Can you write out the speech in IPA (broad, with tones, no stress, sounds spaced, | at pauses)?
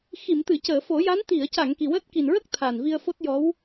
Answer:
x i˨˩˨ m t̪ ɨ˨˩˨ c əː˨˩˨ f o˨˩˦ j a˧˥ n t̪ i˨˩˨ ə̯ c a˨˩˨ ŋ k i˨˩ w əː˦˥ t̚ k i˨˩ n ɹ ə˦˥ k̚ t̪ʰ a˨˩ n v i˧ ə̯ f o˦˥ t̚ j ɔ˧˥ w